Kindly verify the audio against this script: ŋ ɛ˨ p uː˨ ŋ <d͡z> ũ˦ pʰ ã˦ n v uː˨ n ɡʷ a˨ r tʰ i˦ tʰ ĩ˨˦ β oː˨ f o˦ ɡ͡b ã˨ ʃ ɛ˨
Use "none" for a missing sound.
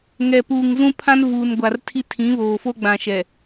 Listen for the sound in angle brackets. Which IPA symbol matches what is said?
z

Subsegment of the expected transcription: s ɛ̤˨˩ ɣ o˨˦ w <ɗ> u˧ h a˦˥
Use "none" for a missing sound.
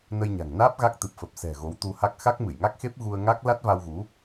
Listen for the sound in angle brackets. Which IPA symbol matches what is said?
t̪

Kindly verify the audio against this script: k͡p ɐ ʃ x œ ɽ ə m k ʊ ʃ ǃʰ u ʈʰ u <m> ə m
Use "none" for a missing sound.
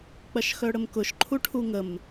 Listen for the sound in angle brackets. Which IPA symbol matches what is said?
ŋ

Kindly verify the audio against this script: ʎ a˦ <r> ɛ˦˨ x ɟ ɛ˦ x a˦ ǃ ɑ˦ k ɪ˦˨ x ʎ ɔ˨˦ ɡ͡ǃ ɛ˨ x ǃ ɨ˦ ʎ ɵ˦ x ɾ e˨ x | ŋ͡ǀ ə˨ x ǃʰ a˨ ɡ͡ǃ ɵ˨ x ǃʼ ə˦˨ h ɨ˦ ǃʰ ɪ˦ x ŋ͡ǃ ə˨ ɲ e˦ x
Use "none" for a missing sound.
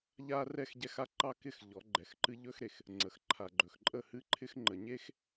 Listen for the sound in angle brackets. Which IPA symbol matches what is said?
r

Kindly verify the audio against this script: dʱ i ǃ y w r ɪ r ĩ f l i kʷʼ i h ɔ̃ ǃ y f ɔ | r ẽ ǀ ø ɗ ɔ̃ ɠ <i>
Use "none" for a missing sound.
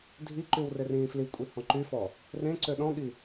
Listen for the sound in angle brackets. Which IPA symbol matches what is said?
i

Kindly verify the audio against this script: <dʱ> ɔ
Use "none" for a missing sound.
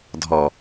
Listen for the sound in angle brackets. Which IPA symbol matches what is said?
dʱ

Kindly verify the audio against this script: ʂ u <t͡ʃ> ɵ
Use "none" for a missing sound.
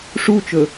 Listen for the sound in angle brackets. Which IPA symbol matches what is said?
t͡ʃ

